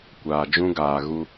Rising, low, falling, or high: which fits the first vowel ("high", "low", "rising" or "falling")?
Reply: low